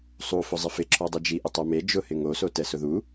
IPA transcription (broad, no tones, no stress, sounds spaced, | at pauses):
sˤ u f ʊ zˤ ɪ f ɪ ǁʰ ɔ dˤ ɪ d͡ʒ i ʔ ɪ tˤ ɛ m e d͡ʒ ʊ h ɪ ŋ o s o t ɛ s ʊ ð u